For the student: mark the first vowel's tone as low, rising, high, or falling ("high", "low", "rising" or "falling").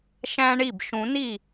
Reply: high